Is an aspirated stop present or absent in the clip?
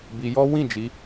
absent